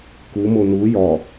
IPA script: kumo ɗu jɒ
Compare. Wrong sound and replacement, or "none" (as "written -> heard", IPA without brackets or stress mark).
ɗ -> n